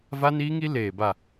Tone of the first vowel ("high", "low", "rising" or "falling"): high